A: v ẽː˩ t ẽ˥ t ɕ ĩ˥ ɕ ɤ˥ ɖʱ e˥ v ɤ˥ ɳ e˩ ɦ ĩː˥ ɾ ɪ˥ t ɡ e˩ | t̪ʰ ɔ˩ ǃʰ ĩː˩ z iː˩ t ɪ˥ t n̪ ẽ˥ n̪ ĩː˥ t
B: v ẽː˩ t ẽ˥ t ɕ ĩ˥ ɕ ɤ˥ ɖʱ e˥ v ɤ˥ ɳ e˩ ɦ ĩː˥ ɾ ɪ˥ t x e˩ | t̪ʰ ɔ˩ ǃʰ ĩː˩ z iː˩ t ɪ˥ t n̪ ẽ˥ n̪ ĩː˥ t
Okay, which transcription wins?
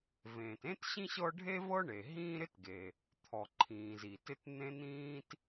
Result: A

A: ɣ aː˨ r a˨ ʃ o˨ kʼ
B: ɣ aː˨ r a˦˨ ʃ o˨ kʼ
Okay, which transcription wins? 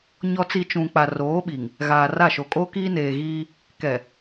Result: B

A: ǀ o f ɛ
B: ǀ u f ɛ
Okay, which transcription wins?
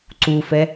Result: B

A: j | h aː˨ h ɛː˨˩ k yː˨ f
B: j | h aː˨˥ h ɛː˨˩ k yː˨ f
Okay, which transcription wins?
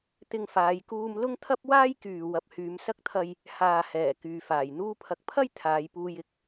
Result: A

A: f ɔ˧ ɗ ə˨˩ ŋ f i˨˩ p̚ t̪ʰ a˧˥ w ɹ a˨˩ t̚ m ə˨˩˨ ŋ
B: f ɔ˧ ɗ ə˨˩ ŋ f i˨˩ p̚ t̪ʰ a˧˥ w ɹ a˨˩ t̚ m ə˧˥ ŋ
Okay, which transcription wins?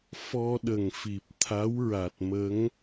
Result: B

